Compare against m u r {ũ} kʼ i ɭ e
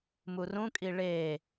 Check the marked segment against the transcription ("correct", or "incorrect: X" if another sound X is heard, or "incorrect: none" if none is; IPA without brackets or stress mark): correct